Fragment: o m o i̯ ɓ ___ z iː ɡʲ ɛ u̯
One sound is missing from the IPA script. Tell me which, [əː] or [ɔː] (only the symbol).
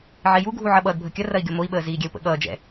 əː